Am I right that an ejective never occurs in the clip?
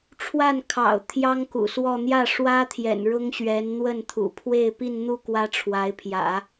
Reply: yes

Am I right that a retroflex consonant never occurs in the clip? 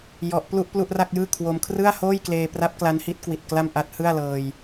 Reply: yes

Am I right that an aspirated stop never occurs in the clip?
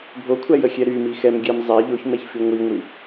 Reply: no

